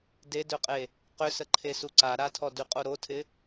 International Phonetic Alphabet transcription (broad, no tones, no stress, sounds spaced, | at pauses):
d e d ø qʼ e | q ʏ s ə ǃʰ e s u ǀ a ɾ a tʰ ɔ d y qʼ o ɾ o tʰ ɪ